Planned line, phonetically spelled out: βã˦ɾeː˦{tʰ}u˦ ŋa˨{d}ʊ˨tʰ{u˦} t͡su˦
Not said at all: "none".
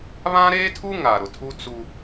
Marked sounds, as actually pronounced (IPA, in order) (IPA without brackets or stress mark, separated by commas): tʰ, ɾ, u˦